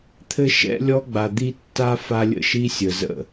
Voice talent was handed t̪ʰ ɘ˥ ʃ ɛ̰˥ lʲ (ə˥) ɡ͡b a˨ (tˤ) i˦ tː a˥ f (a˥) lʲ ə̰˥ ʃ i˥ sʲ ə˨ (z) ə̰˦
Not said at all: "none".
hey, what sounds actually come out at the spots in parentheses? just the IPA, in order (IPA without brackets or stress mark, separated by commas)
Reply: ɔ˥, d̪, a˦, z